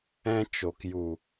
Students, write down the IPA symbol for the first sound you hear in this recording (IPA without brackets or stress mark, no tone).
ɛ̃